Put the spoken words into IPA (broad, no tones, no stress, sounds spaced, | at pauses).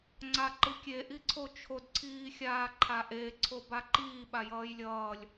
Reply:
ŋ͡ǀ a ǃ ɯ kʲ e ʔ i ǀʰ o t͡ʃʰ o d ǀʰ iː xʲ aː ǃʰ a ʔ e ǀʰ o b a ǃ iː ɓ a j ʌː j lʲ ʌː lʲ